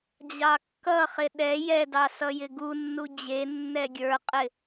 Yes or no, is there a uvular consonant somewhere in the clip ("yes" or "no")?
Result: yes